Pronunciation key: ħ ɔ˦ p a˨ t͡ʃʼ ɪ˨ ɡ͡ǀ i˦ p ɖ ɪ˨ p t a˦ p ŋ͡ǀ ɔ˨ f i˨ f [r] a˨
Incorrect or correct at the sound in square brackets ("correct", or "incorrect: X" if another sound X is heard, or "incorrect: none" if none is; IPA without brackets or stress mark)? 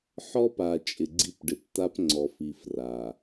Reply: correct